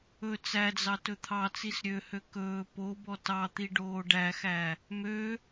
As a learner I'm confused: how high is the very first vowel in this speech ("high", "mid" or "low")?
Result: mid